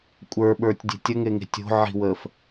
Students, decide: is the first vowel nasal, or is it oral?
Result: oral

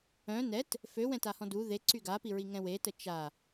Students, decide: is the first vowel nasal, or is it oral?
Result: nasal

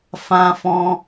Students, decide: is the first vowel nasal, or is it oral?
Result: nasal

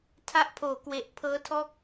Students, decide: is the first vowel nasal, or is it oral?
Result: oral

